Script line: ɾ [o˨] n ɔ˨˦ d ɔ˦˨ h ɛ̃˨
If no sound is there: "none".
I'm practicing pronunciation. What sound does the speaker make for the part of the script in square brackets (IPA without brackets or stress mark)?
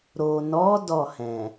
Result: o˨